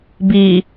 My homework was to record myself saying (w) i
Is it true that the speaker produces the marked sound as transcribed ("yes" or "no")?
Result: no